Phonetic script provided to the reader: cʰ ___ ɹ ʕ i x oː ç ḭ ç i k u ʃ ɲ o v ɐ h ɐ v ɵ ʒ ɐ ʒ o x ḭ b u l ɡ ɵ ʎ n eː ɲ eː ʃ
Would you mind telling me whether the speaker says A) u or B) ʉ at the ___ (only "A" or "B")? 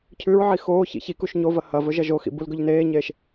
B